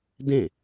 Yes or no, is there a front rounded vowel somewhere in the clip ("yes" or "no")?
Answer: no